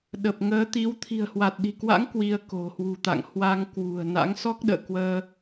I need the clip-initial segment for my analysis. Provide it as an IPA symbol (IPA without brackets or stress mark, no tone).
ɗ